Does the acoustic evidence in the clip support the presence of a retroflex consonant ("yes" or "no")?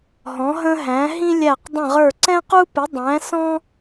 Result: no